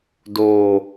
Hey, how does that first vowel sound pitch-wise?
low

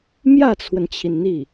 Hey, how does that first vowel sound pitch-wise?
falling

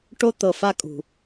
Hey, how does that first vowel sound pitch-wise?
high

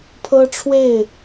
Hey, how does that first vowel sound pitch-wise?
high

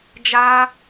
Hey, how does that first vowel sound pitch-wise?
high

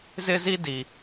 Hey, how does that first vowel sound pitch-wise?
high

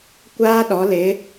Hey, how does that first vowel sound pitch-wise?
high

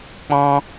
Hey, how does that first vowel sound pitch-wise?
high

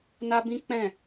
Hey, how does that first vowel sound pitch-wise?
high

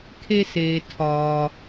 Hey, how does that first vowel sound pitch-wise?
high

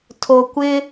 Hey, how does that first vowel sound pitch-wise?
low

